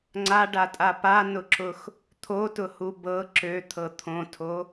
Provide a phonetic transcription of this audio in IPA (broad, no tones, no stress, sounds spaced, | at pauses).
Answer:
ŋ͡ǀ a ɖ a tʼ a p a n ʊ ǁ ʊ x | t̪ʰ o t ʊ h u b ɤ ǁ ø t̪ʰ ɤ t̪ʰ õ tʰ o